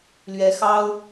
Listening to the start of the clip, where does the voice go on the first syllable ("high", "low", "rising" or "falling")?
rising